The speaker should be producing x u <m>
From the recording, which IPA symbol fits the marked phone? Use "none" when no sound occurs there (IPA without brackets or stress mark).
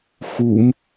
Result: m